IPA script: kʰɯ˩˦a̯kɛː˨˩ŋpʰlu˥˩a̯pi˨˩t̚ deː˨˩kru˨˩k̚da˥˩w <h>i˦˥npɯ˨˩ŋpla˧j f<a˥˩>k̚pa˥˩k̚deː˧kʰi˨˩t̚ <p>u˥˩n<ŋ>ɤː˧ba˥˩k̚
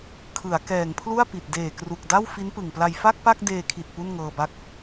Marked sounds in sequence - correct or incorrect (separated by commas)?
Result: incorrect, correct, correct, correct